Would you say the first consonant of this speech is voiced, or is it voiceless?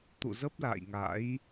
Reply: voiceless